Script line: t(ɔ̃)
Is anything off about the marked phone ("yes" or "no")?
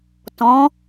no